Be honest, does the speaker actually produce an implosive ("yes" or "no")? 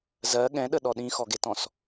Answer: yes